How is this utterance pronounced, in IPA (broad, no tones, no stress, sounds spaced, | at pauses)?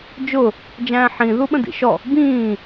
d͡ʒ ʊ | d͡ʒ æ̃ː ħ ĩ ð u ɓ ə̃ d ḭ ʃ ɔ | b ĩː